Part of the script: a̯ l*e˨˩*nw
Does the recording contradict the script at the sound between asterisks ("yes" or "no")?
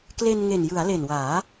no